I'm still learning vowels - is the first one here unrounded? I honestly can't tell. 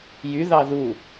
no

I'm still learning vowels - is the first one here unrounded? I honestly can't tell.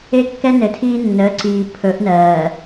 yes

